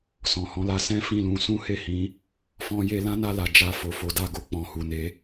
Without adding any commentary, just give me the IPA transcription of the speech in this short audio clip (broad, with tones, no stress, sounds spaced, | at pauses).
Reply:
s ɔ̃˨ h ɔ̃˨˦ l a˧ s ɛ̃˦ f ĩ˦˨ l ũ˧ s ũ˦ h e˦˨ h ĩ˨˦ | f ɔ̃˦ j e˦ l ã˦ n a˧ l a˨ d͡ʒ a˧ f o˨ f o˨˦ d a˦˨ ɡ o˧ k͡p ɔ̃˨ h u˨ n e˨˦